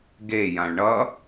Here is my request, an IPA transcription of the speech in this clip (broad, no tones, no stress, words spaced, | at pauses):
ɡejãɭ ɳʌ